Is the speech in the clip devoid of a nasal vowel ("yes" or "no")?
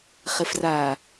yes